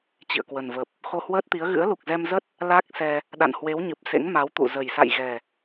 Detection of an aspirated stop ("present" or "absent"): absent